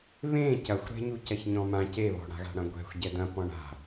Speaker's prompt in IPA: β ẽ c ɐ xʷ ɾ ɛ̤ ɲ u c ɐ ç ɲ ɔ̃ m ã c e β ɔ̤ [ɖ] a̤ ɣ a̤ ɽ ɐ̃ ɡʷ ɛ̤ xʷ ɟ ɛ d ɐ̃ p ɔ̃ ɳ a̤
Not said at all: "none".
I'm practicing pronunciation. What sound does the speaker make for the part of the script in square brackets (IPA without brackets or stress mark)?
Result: ɽ